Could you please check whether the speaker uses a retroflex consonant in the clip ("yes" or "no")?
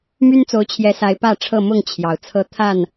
yes